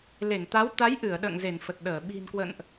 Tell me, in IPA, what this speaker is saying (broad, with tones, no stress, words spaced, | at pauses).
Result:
le˧˩ŋt̪a˨˦w t̪a˨˦jʔɨ˧˩ə̯ ɗə̰ː˧˨ŋze˧˩n fə˨˩t̚ɗəː˧˩ ɓi̤˨˩nkwə̰˧˨nʔ